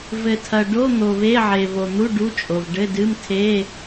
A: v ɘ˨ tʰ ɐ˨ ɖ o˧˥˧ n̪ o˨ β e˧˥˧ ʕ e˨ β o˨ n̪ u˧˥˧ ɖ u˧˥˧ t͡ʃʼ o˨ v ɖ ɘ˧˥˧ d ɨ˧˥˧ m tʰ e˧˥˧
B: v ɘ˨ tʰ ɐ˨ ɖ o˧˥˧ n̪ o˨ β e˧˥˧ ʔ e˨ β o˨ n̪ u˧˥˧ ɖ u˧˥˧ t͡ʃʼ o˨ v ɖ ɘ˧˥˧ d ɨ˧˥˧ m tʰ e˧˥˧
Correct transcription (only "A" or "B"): A